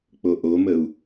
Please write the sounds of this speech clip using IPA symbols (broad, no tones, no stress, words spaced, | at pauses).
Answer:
k͡poʔoməu̯